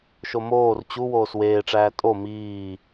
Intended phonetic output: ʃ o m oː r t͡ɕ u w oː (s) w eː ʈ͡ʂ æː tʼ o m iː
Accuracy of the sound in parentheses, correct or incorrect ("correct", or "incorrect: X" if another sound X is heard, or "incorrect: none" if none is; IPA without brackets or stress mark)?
correct